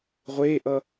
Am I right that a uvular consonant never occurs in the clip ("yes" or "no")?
no